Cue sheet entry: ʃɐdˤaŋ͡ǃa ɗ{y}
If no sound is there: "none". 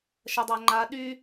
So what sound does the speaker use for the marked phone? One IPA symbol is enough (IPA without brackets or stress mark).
y